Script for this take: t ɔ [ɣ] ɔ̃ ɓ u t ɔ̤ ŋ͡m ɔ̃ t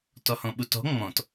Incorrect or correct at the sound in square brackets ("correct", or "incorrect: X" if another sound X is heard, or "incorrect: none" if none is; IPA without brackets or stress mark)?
incorrect: h